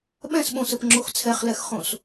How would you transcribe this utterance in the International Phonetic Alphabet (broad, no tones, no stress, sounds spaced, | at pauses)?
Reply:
ɓ ɛ̃ s ɓ õ s ə p ŋ͡ǁ o x t͡sʰ ɛ χ l ɛ x χ õ s